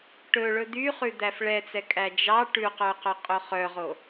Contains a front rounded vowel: yes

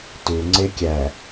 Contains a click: yes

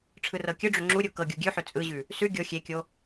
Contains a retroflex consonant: yes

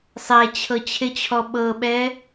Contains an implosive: yes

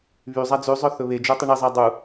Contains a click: no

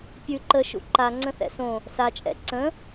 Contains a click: yes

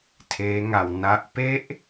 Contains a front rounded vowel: no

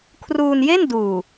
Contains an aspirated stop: yes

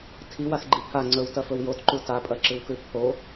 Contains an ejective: yes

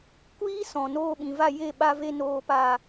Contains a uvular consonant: no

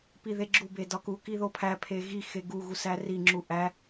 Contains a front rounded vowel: no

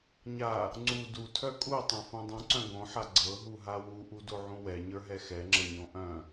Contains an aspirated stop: yes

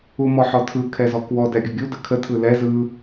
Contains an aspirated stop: yes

